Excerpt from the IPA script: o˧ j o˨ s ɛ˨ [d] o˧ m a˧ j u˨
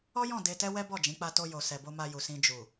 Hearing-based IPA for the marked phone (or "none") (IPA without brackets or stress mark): b